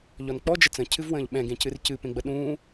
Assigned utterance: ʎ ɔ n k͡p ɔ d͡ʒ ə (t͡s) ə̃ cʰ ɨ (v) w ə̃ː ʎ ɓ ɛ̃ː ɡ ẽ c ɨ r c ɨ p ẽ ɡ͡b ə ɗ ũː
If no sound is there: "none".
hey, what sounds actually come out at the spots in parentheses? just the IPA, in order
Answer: t͡s, v

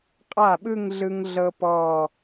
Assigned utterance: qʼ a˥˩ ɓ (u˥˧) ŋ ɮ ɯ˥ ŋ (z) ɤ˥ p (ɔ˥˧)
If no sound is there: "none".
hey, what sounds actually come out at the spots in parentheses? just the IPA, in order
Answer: ɯ˥˧, ɮ, ɔ˥˧

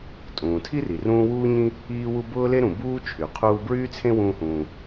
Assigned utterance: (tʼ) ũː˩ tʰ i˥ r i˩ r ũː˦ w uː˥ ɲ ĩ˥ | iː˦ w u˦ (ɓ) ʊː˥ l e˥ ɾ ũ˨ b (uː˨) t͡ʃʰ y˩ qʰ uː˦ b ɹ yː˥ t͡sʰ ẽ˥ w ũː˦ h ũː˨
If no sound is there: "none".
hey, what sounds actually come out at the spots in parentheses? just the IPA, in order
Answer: tʼ, b, uː˥

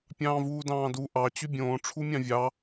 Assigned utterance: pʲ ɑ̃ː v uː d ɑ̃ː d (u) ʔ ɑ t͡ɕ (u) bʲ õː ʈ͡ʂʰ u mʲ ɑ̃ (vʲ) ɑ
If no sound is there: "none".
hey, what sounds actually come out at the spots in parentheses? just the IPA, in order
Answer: u, y, vʲ

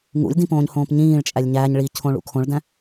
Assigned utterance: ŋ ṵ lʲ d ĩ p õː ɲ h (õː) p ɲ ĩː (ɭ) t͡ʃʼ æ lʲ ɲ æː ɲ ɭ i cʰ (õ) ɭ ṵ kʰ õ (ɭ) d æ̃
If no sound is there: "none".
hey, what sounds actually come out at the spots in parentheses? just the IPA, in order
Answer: õː, ɭ, õ, ɭ

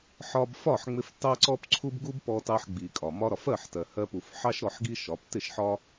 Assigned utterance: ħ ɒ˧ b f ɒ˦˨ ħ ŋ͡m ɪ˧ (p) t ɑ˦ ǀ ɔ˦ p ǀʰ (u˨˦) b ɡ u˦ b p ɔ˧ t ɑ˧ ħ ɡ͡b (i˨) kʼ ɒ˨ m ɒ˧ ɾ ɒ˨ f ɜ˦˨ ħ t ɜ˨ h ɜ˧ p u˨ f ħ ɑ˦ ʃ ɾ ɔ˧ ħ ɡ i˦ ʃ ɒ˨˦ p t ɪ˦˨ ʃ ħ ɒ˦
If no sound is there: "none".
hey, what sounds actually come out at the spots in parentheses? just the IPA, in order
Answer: f, u˦, i˨

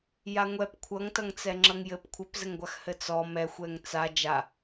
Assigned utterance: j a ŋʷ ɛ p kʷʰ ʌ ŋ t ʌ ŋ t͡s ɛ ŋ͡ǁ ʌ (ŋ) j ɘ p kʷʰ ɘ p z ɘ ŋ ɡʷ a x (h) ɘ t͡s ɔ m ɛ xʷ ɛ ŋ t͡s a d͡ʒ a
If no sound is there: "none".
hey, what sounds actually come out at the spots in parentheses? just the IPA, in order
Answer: ŋ, h

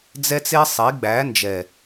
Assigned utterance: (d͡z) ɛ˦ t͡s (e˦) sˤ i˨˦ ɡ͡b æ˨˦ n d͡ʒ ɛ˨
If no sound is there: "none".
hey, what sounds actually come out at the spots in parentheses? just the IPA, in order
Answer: d͡z, e˦

